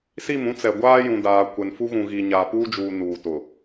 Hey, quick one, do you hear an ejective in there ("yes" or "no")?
no